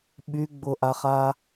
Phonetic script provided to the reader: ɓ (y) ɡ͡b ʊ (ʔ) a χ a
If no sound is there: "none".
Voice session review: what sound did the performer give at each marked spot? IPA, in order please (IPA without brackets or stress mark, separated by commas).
y, ʔ